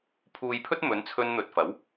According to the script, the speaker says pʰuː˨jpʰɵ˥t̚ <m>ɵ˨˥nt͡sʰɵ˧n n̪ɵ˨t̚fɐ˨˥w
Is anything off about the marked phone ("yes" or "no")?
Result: no